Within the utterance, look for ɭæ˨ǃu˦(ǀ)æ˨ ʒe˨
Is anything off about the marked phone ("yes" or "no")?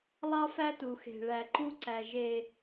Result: no